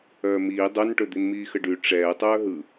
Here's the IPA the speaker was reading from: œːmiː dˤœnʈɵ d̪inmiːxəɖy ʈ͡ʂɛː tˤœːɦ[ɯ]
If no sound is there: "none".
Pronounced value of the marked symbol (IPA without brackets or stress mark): ɯ